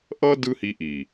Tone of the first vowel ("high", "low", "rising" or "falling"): high